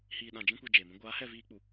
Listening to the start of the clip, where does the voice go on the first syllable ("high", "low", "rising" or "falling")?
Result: low